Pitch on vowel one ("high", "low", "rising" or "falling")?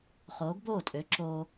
rising